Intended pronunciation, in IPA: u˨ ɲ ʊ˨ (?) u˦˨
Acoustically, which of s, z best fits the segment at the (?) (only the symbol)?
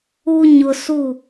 s